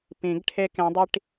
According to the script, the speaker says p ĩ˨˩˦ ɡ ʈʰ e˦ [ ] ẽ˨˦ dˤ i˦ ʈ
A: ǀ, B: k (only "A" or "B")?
B